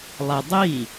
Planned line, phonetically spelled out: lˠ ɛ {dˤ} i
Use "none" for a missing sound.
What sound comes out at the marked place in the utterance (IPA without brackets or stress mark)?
dˤ